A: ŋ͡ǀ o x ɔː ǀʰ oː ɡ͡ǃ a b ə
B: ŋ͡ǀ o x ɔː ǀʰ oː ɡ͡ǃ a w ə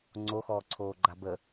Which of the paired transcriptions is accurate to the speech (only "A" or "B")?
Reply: A